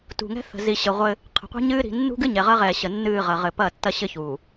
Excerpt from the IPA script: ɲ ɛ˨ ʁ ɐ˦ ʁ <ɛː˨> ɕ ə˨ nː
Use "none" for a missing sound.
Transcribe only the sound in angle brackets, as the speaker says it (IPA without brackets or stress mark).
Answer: ɛː˨